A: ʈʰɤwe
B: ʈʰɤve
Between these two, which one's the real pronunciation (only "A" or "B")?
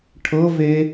B